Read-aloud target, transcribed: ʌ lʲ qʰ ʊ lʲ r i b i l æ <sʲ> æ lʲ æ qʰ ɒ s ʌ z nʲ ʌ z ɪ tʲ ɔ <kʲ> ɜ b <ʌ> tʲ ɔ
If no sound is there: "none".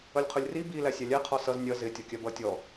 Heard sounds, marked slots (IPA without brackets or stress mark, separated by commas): sʲ, kʲ, ʌ